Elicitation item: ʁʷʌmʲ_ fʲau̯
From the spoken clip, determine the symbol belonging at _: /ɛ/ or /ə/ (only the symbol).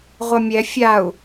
ɛ